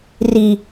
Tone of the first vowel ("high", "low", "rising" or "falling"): low